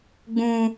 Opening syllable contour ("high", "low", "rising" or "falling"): high